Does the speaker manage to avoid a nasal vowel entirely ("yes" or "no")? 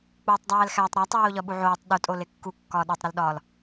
yes